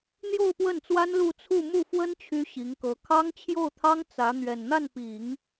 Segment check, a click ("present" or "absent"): absent